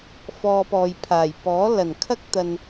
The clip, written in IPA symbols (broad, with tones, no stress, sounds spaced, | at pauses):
f ɔː˧ p ɔː˨ j pʰ aː˨˩ j p ɔː˨˥ l ɐ˨˩ n kʰ ɐ˥ k̚ t̪ ɐ˨ n